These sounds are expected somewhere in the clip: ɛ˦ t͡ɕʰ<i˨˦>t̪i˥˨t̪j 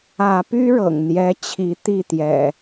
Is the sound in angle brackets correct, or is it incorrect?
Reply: correct